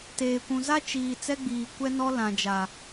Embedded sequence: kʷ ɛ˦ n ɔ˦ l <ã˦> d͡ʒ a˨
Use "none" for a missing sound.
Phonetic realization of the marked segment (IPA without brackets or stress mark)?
ã˨